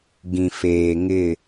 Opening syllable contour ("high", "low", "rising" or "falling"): low